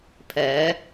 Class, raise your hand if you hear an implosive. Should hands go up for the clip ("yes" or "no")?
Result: no